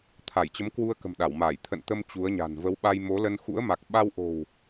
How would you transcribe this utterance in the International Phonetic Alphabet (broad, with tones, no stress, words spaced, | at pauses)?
t̪ʰa˧˩jt͡ɕə˨˦mkwu˧ə̯kə̤˨˩m ɗa˧˩wmaː˧˩j t̪ʰə̰˧˨nt̪ə˧m t͡ɕu˨˦ə̯ɲa̤˨˩n və˨˦wɓa˧jmo˨˦lə˧n xṵ˧˥ə̯ma˨˩k̚ ɓa˧wʔo̤˨˩w